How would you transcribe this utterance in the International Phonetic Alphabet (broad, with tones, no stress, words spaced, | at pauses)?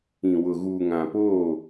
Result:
ĩ˨wʊ˨ ɣuː˨ŋã˨poː˦˨